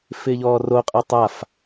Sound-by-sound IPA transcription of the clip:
f ɪː ʎ ɔː r o qʼ a tˤ a f

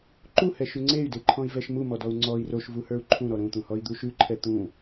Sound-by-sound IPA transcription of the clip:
ǃ u h ɛ ʃ ʉ ŋ͡ǀ e y̯ d e ǃʰ ɔ̃ i̯ v ɛ ʃ m u m ɔ d ɔ u̯ ŋ͡ǀ ɔ i̯ r o ʃ v u h ə˞ u̯ ǃʰ ũ ɾ ɔ ɾ ũ t̪ ũ h ɔ i̯ d̪ u ʃ ʉ ǃʰ ɛ t̪ ũ

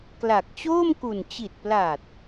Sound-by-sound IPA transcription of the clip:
k l a˨˩ k̚ t͡ɕ oː˥˩ m k u˨˩ n t͡ɕ i˨˩ t̚ p l a˨˩ t̚

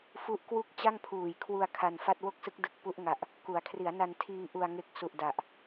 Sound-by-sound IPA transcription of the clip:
f u˦˥ ʔ k w u˥˩ k̚ t͡ɕ a˥˩ ŋ pʰ uː˨˩ j kʰ w u˧ a̯ kʰ a˧ n f a˥˩ t̚ w o˥˩ k̚ s ɯ˦˥ k̚ d ɯ˨˩ k̚ p u˦˥ ʔ ŋ a˨˩ ʔ | k u˩˦ a̯ kʰ r i˩˦ a̯ n a˧ n tʰ iː˧ ʔ u˨˩ a̯ ŋ e˨˩ k̚ s u˨˩ ʔ d a˨˩ ʔ

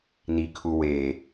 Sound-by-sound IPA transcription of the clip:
n i kʰ u w e

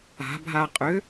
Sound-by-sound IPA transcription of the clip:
a̤ bʱ a qʼ ʏ

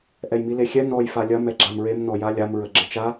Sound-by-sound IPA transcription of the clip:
ʔ ɛ j m i l e xʲ ɛ n ɔ j f a lʲ ɐ m ɛ ɡ͡ǁ a m ɹ e m n ɔ j a lʲ a m ɹ ə ɡ͡ǁ ə t͡ʃ a

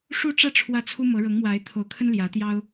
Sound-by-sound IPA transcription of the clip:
ʂ u˥˧ ʈ͡ʂ ä˥˧ ʈ͡ʂʰ w ä˥˩ t͡sʰ u˥ m ɤ˧˥ ɻ ɤ˧˥ ŋ m w a˧˥ ɪ̯ t̪ʰ o˧˥ ʊ̯ kʰ ə˥ n l j ä˧˥ t̪ j ɑ˥ ʊ̯

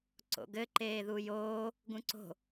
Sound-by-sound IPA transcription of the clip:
ǀ o̰ ɡ ɘ ǃ eː ð u j oː | ɡ ũ ǀ o̤

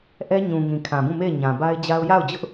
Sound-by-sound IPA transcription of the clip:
ʔ ɛ˦ ɲ ũ˨ ŋ ĩ˨ kʰ ã˨ b ũ˦˨ m e˦˨ ɪ̯ ɲ ã˨ b a˦ ɪ̯ d͡ʑ a˦ ʊ̯ j a˦˨ ʊ̯ d͡ʑ ʊ˦ ʔ

